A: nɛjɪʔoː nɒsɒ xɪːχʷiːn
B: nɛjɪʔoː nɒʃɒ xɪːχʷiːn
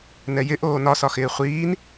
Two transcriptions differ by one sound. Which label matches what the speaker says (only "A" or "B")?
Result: A